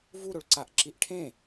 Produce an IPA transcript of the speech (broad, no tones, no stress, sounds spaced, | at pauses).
v u ɾ o ɭ ǀ a ʔ ǁ i ʔ ʈʰ ẽ